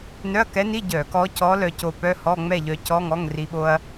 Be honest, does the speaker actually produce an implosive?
yes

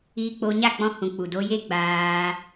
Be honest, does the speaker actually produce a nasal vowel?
yes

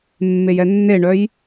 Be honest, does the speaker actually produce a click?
no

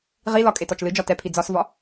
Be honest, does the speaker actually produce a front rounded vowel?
no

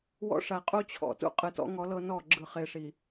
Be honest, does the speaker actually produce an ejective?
yes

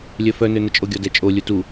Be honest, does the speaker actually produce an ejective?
yes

